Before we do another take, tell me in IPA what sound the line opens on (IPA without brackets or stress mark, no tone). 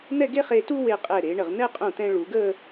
n̪